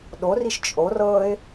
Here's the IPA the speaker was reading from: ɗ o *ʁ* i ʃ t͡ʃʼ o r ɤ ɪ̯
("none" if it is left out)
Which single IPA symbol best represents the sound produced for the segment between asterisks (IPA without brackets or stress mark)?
r